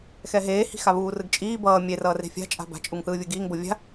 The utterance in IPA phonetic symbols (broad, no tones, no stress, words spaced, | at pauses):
xɛɦeːhi̤ xaβuːrɯɡt͡ʃʼiː bʌː mʲerʌːre̤ fʲa̤t͡ʃʼa̤ ba̤t͡ʃʼuŋθɯːvʲɯ ɡiːŋbo vʲa̤